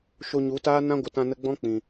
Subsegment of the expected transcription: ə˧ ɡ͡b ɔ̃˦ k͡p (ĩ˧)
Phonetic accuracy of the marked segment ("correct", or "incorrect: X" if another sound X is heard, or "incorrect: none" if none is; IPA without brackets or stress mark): incorrect: ĩ˨